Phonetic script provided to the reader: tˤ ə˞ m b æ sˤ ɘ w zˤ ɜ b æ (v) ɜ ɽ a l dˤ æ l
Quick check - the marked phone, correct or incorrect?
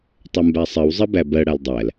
incorrect